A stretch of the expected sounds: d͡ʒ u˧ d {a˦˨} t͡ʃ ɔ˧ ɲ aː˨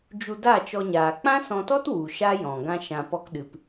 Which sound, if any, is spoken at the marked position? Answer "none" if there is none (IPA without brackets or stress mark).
a˦˨